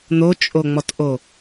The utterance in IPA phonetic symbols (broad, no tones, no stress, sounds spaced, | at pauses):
n̪ o t͡ʃʼ o ŋ͡m ɔ t ʔ o